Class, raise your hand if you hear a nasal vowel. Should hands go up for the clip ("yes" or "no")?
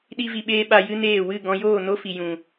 yes